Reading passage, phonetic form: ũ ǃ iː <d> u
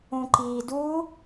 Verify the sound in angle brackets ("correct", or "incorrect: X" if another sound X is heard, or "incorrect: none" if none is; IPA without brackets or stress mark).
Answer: correct